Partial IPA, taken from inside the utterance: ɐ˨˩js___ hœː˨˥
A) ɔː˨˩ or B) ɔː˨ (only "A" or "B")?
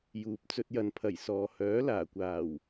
B